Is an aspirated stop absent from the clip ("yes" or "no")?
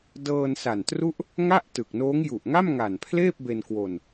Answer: no